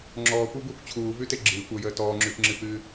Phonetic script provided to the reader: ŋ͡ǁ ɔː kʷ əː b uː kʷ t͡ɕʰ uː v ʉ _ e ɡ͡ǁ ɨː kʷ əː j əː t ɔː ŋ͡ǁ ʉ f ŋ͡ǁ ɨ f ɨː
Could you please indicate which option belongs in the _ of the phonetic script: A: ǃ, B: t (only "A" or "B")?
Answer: B